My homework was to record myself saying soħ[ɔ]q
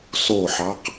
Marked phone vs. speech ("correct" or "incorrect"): incorrect